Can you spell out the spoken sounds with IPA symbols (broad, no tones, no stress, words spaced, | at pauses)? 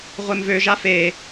ʁʷemvøʒa fe